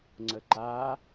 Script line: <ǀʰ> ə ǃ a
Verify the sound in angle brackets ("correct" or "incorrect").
incorrect